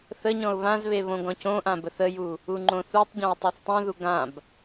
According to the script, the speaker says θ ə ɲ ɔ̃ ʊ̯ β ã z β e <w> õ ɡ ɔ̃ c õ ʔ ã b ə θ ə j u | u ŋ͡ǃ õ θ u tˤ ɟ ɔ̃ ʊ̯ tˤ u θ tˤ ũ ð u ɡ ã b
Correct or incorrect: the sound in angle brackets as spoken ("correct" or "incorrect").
incorrect